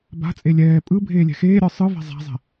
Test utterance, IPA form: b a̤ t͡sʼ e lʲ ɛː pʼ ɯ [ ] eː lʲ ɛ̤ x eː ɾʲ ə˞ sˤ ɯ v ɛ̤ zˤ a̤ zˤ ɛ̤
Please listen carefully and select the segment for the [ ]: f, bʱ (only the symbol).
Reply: bʱ